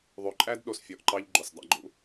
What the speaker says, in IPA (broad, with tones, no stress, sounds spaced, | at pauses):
ðˤ ʉ˨ ǃʼ æ˦ d ɗ o˨ s fʲ ɔ˨ ʔ ǃ ɑ˧ ʎ ɡ͡ǃ o˨ s dˤ ɑ̰˦ ɡ͡ǃ ṵ˦